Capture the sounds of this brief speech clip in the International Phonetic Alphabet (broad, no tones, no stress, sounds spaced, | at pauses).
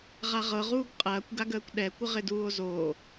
ʁ a ʁ ɤ ʁ uː ɡ qʼ ɐː kʷ ɡ a ɡ əː kʷ ɗ ɛ kʷ ə ʁ ɪ d uː o̯ z oː